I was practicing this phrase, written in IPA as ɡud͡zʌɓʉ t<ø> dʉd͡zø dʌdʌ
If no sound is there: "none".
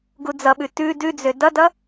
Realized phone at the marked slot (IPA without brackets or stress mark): ʉ